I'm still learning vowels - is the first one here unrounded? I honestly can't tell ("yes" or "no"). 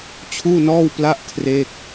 no